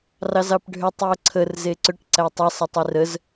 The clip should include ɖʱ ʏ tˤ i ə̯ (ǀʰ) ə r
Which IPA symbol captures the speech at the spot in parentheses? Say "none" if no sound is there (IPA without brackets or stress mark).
ǀʰ